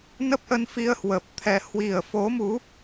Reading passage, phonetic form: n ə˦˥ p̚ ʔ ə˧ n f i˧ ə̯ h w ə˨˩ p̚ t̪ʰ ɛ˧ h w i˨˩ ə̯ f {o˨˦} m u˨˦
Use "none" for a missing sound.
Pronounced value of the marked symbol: o˨˦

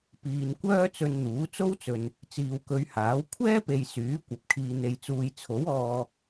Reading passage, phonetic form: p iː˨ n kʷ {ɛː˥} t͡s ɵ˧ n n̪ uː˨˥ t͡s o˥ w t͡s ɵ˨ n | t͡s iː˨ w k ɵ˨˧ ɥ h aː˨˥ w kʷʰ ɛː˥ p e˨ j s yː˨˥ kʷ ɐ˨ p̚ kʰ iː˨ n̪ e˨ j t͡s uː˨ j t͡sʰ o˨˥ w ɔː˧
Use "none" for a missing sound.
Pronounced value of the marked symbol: œː˥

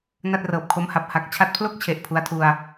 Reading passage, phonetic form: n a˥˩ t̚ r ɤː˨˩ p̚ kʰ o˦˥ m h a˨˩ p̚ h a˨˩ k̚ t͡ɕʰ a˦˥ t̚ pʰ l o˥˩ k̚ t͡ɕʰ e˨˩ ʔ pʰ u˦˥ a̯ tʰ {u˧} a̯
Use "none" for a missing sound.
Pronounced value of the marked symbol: u˧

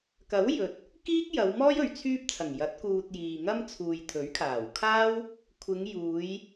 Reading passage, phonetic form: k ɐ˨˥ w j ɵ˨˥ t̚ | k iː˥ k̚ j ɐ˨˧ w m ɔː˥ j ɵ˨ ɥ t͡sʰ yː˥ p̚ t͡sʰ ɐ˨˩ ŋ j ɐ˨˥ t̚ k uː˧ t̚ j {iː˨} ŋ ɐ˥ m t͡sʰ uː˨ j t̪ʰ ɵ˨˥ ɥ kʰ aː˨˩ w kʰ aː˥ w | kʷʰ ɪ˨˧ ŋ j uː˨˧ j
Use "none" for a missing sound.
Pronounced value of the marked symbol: iː˨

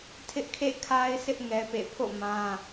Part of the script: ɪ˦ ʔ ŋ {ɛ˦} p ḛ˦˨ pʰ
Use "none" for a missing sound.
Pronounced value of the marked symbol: ɛ˦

